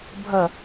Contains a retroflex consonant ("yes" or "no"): no